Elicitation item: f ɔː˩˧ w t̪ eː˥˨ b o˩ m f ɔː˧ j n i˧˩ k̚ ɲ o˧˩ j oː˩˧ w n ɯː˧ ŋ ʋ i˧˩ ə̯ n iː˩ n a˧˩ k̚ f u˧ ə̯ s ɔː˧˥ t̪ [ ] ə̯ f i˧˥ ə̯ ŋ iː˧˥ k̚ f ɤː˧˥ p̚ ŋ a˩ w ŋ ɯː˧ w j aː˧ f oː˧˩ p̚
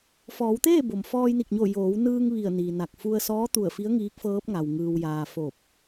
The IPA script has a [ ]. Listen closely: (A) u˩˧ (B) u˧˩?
B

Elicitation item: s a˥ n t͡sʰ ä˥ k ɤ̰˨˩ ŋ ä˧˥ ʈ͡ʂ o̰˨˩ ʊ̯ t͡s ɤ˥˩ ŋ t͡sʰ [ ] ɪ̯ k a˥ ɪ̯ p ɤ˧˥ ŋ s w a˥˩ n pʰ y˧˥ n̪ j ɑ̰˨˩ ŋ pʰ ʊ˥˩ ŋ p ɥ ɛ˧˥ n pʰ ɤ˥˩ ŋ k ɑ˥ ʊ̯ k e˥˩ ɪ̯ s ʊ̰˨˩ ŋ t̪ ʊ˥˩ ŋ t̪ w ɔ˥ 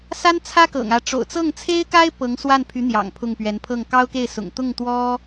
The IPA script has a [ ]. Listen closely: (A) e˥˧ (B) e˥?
B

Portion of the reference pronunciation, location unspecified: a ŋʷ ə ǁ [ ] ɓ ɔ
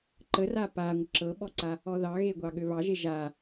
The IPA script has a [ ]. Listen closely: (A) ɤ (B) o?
A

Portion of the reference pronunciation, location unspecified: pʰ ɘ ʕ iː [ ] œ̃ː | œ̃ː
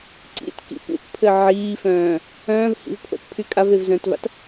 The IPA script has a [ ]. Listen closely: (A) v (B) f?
B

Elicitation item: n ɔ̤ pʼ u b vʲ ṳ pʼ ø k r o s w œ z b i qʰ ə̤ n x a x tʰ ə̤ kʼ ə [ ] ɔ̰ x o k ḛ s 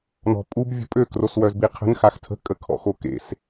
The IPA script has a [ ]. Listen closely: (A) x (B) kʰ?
B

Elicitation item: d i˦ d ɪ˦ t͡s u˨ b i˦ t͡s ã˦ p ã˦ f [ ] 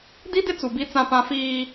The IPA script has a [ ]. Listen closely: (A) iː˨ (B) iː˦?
B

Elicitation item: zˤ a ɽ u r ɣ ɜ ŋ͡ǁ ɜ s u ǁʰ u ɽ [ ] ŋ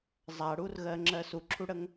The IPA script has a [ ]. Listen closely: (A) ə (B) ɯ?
A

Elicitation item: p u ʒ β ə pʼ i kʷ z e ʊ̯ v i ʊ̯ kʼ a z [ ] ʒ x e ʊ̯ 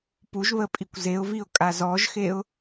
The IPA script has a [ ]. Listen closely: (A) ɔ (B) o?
A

